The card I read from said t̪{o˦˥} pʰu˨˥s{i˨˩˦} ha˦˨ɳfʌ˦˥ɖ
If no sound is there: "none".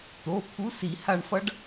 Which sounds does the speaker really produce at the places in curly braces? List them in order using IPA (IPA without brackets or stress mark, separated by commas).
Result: o˩˧˩, i˨˩˦